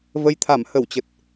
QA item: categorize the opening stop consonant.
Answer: aspirated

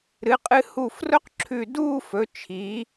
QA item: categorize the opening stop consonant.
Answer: ejective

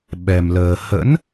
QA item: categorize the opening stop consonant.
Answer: implosive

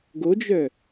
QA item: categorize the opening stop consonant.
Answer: plain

